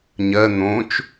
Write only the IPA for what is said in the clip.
ɲ ɜ n̪ õ t͡ʃ

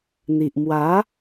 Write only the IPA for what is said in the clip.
n̪ i˨ ʔ m w a˨˦

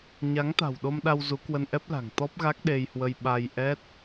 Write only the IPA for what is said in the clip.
ɲ a˨˦ ŋ t̪ a̤˨˩ w ɗ o˧ m ɗ a˧ w z u˨˦ k w ə˧ n ʔ ɛ˦˥ p̚ l a̤˨˩ ŋ t̪ ɔ˦˥ p̚ ɣ a˦˥ k̚ ɗ e˧ j h w ə˧ j ɓ a˧ j ʔ ɛ˦˥ t̚

